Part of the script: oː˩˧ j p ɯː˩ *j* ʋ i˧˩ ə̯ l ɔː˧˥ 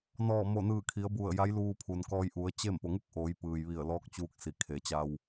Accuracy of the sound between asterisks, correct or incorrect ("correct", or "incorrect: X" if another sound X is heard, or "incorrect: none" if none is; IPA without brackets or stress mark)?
correct